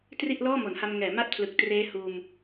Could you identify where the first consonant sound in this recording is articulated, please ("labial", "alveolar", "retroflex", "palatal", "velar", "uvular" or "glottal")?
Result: alveolar